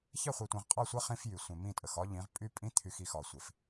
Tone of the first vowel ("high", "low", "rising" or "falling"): falling